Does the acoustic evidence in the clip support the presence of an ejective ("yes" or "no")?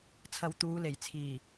no